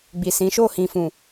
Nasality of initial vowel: oral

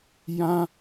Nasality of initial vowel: nasal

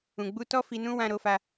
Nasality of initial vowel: nasal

